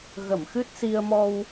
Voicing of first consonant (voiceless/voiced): voiced